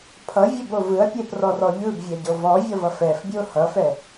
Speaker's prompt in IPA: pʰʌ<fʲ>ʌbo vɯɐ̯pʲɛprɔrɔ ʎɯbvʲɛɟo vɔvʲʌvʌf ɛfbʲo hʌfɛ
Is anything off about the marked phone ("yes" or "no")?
yes